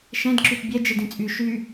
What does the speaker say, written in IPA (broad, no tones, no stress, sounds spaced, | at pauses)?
ʃ ɛ̃ d ǁ y t bʲ ɛ d͡ʒ ɨ d ĩ t͡sʼ y ʃ y